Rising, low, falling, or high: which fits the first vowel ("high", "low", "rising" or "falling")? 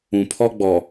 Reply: low